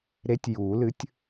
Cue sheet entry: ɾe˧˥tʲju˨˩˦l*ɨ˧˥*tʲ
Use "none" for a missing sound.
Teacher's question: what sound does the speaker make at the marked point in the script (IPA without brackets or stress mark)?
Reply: ɨ˧˥